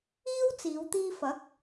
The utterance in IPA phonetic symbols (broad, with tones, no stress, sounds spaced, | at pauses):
iː˥ w t͡s iː˨˧ w t̪ iː˧ f ɐ˨˥ k̚